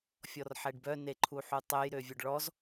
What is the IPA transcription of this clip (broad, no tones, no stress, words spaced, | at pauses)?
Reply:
fʲɔrħɛɖbœ neǃʰuħutˤøj ɾøvʲœɖɭɔz